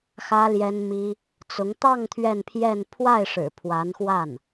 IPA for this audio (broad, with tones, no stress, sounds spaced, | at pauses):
x ä˥ l j ɛ˥ n m i˥ | t͡s ʊ˧˥ ŋ t̪ ɑ˥˧ ŋ t̪ʰ ɥ ɛ˥˧ n pʰ j ɛ˥˧ n pʰ w a˥˩ ɪ̯ ʂ ɻ̩˨˩ pʰ w a˧˥ n x w a˥˩ n